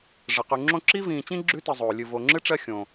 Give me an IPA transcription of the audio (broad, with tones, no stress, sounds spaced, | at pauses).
ʐ ə˩ q ʉ˨ ŋ͡ǁ õ˥ ǁ i˥ v ĩː˨ t͡ɕ ĩ˥ ɡ͡ǁ ʉ˦ t ɨ˨ zˤ oː˩ lʲ ɨ˨ v o˨ ŋ͡ǁ ɨ˥ ʈ͡ʂ ɜ˦ xʲ õ˩